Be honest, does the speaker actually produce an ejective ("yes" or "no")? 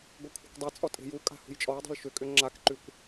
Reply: yes